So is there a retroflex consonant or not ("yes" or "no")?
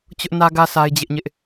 no